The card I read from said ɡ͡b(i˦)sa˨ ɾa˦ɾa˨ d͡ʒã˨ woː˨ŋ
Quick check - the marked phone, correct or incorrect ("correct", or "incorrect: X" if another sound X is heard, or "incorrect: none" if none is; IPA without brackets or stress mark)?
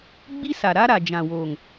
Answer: correct